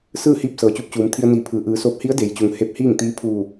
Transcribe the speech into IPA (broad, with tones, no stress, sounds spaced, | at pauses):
s ɯː˥˨ h iː˥˨ p̚ s ɤː˩˧ t͡ɕ u˧˥ p̚ t͡ɕ uː˩˧ m t̪ʰ i˧ ə̯ n iː˧˩ pʰ ɯː˩ ʔ ɯː˩˧ s oː˧˥ p̚ h i˧˥ ə̯ d e˩ j t͡ɕ u˩ ŋ h e˧ p̚ h iː˥˨ ŋ t̪ iː˧˥ pʰ uː˧˩